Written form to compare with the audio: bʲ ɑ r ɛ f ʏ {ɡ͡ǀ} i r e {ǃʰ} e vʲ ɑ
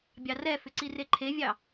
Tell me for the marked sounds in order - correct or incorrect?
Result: incorrect, correct

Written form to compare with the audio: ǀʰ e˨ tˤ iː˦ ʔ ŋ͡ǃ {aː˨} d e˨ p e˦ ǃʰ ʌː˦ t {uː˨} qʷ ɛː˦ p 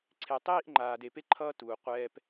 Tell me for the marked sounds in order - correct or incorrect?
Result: correct, correct

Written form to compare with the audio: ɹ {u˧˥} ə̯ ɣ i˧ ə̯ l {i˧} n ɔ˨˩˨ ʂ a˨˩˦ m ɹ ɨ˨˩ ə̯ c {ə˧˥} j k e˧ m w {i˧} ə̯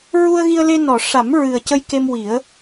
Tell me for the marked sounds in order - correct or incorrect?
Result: incorrect, incorrect, incorrect, incorrect

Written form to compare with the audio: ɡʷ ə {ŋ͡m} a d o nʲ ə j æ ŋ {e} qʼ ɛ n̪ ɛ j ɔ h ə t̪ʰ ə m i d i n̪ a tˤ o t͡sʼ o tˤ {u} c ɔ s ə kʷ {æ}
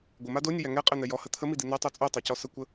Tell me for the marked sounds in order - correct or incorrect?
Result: incorrect, incorrect, incorrect, incorrect

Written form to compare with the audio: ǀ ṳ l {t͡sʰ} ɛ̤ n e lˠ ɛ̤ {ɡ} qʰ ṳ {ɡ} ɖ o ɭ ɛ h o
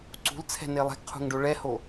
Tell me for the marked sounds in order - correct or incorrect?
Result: correct, correct, incorrect

